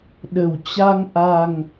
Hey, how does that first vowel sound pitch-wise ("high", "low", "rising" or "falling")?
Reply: low